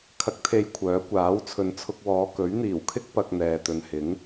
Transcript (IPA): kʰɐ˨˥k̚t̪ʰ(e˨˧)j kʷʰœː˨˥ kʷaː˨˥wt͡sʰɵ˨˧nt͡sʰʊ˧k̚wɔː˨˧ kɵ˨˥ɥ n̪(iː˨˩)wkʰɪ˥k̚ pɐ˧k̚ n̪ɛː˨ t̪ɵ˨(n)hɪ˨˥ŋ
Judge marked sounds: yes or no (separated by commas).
yes, yes, yes